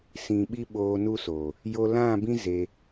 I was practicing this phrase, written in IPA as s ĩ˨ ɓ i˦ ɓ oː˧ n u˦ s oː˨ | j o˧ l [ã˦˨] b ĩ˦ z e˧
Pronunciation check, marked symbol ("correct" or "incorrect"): correct